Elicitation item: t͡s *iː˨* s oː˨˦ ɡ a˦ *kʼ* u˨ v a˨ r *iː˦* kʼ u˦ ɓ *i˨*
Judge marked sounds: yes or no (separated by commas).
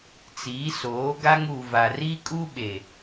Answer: no, no, no, no